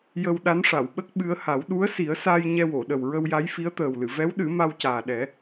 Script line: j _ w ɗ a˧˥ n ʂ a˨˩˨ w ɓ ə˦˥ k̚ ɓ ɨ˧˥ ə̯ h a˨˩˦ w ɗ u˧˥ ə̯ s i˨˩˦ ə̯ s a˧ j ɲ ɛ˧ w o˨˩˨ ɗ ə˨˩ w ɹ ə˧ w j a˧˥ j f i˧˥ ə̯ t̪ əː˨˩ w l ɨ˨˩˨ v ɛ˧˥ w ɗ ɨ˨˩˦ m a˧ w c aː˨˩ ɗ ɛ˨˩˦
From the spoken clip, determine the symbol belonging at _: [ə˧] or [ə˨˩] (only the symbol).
ə˧